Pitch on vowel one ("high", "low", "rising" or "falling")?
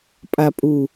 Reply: low